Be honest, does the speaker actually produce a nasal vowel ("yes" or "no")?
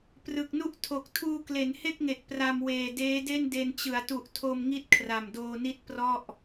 no